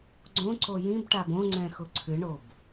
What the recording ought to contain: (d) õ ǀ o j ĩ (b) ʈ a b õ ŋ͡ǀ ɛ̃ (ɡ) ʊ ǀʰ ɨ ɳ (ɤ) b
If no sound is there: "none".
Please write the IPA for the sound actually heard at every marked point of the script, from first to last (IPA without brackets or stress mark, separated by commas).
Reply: ɡ͡ǀ, b, x, o